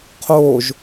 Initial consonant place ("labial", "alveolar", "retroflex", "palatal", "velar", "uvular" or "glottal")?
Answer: uvular